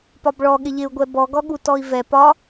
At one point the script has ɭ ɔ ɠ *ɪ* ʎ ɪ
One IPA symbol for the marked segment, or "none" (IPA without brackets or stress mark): ɪ